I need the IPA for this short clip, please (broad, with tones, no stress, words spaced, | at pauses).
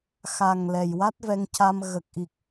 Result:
xa˨˩ŋ lɛ˨˩jwa˦˥t̚vɛ˧ŋca˧m ɣə˨˩k̚ʔi˨˩k̚